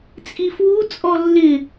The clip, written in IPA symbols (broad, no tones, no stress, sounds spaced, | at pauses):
t͡sʼ i f w u t͡sʼ ɔ lː ɪ